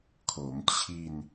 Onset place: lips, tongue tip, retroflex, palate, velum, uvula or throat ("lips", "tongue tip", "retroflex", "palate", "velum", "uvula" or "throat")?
velum